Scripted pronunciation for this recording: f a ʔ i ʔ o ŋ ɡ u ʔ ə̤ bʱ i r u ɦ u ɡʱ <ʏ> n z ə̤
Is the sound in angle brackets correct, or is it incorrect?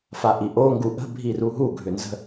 correct